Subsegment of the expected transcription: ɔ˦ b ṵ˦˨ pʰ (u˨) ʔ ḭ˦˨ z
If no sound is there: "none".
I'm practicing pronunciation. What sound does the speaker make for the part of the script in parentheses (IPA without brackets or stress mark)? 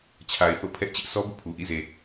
u˨